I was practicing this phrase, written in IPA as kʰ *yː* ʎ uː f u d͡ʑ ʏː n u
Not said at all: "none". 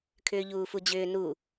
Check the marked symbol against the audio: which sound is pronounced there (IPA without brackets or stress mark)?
ʏː